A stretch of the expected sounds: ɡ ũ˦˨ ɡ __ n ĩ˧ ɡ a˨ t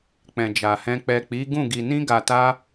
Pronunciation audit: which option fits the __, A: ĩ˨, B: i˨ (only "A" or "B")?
B